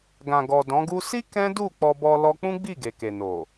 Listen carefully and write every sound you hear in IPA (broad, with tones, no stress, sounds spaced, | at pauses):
ɡ ã˨ ɡ ɔ˨ d ɔ̃˨˦ ɡ u˦ s i˦ k ɛ̃˦ d u˦˨ k͡p ɔ˧ b ɔ˧ l ɔ˧ k͡p ũ˦ ɡ͡b i˦˨ ɡ e˨ k e˨ n o˨